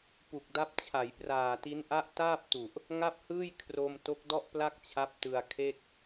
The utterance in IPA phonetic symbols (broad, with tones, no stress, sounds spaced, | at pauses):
p u˨˩ k̚ d a˦˥ p̚ t͡ɕʰ a˩˦ j p r aː˨˩ t i˦˥ n ʔ a˦˥ ʔ t aː˥˩ p̚ t u˨˩ ʔ | ŋ a˥˩ p̚ h ɯː˥˩ j kʰ r o˧ m t o˦˥ k̚ d ɔ˥˩ ʔ p l a˥˩ k̚ t͡ɕʰ a˦˥ p̚ t ɯ˧ a̯ kʰ e˥˩ k̚